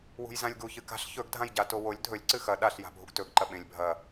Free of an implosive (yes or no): no